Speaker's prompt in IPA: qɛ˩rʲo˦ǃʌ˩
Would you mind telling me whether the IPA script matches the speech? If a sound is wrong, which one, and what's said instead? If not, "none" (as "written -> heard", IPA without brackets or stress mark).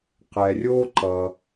none